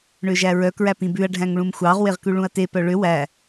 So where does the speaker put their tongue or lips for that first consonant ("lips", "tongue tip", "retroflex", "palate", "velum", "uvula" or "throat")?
retroflex